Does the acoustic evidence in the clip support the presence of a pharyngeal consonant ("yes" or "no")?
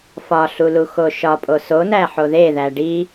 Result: yes